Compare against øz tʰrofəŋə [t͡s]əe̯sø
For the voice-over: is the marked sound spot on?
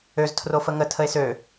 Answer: no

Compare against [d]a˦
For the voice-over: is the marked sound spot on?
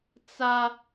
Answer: no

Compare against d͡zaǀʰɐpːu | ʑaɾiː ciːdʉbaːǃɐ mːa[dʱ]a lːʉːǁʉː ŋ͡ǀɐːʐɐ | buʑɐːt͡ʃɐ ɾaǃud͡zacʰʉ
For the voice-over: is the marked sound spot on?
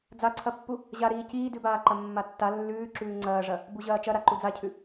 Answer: no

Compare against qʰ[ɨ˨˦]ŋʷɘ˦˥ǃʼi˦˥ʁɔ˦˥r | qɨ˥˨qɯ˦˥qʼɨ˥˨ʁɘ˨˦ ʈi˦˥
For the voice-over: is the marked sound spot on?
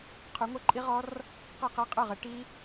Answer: no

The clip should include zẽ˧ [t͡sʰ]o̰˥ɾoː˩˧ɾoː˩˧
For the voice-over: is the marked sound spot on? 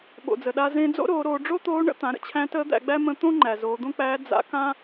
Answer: no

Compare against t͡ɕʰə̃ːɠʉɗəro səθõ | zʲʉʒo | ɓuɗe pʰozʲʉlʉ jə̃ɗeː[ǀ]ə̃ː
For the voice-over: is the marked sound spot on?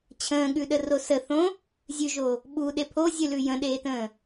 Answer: no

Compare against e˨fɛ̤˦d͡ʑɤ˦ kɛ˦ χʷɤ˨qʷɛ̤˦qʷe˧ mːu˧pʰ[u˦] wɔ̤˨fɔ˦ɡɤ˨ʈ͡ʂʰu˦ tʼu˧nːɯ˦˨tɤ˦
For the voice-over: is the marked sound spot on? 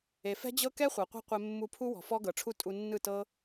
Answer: yes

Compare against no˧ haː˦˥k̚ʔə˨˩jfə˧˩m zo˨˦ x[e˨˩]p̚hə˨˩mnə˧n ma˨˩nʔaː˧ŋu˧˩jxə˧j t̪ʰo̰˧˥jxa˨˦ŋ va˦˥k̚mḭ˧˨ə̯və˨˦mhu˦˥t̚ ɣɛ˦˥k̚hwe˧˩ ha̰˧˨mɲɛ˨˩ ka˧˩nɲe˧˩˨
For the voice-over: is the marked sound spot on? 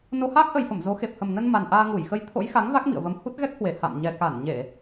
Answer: yes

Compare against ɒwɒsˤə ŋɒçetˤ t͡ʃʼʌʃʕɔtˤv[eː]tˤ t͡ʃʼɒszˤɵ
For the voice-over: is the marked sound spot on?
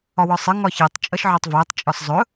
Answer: yes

